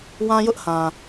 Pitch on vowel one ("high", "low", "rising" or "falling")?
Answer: high